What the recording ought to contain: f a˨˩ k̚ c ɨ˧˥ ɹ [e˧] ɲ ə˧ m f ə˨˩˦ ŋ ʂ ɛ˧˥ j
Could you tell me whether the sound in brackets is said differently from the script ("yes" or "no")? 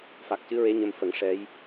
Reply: yes